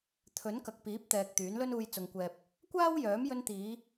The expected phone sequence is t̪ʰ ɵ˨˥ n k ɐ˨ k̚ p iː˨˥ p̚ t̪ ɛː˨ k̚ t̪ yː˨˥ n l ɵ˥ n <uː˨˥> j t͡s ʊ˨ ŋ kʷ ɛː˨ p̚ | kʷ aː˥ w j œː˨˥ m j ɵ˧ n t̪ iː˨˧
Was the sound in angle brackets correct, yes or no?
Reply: no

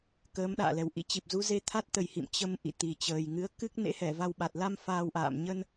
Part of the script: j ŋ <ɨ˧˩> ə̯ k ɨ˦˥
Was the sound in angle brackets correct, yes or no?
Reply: no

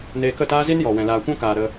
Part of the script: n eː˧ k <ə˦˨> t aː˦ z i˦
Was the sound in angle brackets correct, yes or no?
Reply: yes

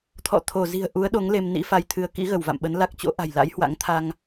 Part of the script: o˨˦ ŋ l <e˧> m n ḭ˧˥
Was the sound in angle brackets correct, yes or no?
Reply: yes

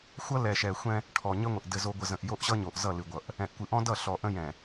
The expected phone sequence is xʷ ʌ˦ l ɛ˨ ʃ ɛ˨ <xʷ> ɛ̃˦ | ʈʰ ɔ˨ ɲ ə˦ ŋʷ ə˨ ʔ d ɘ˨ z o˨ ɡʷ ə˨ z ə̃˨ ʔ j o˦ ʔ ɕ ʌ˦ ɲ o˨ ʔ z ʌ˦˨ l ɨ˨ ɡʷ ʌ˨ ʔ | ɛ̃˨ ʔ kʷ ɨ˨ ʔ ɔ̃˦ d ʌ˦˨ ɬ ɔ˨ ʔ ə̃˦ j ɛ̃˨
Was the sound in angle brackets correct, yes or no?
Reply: yes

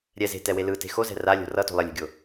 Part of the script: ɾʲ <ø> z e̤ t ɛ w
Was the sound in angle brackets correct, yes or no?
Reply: no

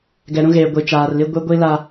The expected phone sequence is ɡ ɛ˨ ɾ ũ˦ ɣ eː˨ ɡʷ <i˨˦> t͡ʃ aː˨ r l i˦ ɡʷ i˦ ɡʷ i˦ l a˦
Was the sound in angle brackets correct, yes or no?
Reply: no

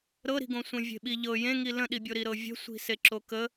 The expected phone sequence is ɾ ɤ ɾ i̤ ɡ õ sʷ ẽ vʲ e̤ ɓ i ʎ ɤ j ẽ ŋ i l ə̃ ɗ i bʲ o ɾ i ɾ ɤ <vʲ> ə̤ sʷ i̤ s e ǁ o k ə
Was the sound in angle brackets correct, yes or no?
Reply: yes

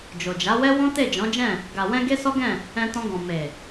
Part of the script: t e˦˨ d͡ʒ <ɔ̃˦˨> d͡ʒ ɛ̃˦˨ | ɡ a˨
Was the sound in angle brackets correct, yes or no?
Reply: no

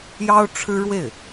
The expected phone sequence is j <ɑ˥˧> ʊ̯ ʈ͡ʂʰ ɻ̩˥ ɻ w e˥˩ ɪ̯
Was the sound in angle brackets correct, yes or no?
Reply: no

